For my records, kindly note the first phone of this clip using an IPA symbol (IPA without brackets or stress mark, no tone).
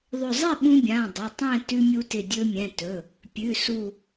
ðˤ